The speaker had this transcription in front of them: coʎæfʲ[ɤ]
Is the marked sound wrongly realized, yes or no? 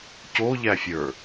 yes